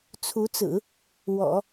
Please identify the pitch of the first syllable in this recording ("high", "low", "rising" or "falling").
rising